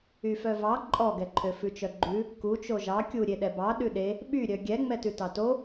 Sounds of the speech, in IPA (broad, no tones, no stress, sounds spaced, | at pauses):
y f œ v ɑ ǃʼ ɔ ɡ ɛ ǃʰ ø f ʉ t͡ʃ œ ɡ͡ǃ ʉ | k u t͡ʃ o ʒ ɑ kʲ u ɾʲ e ɗ ɛ b ɑ ɗ ʉ ɗ e | ɓ y ɾʲ œ ɡʲ ɛ ŋ͡m ɛ t ʉ t ɑ t o